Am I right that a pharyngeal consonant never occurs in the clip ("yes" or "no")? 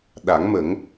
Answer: yes